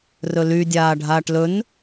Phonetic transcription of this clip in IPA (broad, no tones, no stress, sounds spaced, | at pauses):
r ɵ l y dʲ aː ɖʱ aː ʈ l ɵ n